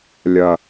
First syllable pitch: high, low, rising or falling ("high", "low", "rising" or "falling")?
low